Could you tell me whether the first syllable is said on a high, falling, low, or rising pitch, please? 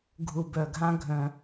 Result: low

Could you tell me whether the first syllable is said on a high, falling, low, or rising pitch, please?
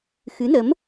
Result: rising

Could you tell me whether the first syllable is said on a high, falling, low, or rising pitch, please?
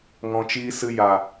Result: low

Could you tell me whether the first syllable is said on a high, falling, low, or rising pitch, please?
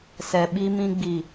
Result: low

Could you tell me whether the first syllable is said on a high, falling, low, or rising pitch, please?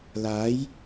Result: rising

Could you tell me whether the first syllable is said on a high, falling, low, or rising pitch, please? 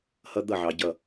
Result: high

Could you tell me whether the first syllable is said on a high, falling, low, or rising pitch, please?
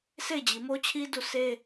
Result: falling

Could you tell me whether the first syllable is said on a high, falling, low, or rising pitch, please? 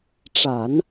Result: low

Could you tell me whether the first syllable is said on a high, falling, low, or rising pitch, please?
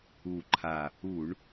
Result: low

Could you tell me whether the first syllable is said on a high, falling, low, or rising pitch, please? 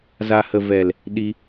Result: low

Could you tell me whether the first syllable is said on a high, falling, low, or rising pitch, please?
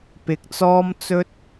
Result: low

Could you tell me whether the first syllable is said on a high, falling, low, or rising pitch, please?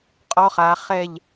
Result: high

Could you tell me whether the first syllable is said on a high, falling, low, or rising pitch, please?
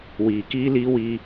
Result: low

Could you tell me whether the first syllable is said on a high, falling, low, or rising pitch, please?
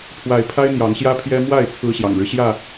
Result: rising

